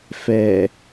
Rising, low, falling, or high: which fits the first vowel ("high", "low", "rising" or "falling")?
low